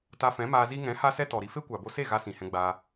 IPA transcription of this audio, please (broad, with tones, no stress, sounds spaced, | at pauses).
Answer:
t a˧ f ɛ̃˨˦ m aː˧ z i˧ ŋ ɛ̃˨˦ h a˦ s ɛ˦ t ɔ˨ ɾ i˧ f e˦ kʷ a˨ b o˧ s e˦˨ ɣ a˧ s ĩ˨ h ɛ̃˧ ɡ͡b aː˧